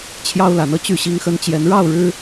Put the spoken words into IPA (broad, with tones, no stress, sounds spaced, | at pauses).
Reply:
t͡ɕʰ j ɑ˦ ʊ̯ l a˨˦ n ɤ˧ t͡ɕ y˥˨ ɕ i˦ ŋ x ə˦ n t͡ɕ j ɛ˨˦ n ɻ ɑ˥˨ ʊ̯ ɻ ɻ̩˦